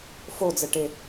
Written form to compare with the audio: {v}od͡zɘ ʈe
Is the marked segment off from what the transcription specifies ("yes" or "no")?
yes